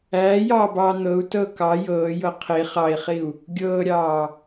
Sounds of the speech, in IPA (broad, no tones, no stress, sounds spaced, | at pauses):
æː j ɑː b ɑː n̪ ɤ u̯ t ɤ k ɑ j ɤː j ɤ qʰ i χ ɑ i̯ χ i u̯ | ɡʲ ɤː ɾʲ ɑː